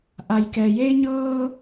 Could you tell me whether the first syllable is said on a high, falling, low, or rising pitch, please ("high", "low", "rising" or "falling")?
low